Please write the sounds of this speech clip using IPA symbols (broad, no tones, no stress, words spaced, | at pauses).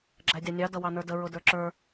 ɡ͡ǁædʲɑnʲɑ dʌwɑnə˞də ɹʊdə˞ǁə˞